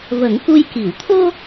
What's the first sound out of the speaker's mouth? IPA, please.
v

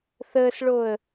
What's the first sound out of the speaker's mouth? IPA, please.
θ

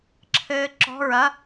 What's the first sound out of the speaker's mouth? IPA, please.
ǁʰ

